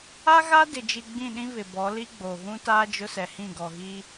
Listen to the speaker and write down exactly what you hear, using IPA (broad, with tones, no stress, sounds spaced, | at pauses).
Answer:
a˦ ɣ a˦ d ɪ˨ d͡ʒ i˨ ɡ͡b ĩ˦˨ ɗ ĩ˦ β ɪ˨ b ɔ˨˦ l i˦ ɡ͡b oː˨ ɣ ũ˦ t aː˦ d͡ʒ ʊ˦ s ɛ˨ h ĩ˦˨ ɡ ɔ˨ ɣ i˦